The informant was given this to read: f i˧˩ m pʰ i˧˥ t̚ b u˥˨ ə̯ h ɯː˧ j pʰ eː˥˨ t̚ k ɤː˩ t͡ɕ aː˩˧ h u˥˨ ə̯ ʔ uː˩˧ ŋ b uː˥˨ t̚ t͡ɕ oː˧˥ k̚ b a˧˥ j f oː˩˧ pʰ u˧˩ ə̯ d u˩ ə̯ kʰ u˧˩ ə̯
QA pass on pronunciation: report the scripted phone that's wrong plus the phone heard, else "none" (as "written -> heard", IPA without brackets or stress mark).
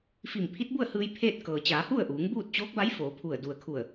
none